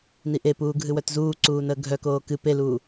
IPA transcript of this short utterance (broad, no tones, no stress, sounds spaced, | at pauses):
n i ʔ e p uː ɡʱ ɨ w œ t z uː ǀ uː n əː ɡʱ œ k oː k ɨ p e l uː